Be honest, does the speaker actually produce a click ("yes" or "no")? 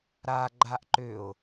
yes